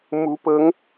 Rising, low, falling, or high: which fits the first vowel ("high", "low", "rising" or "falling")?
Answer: rising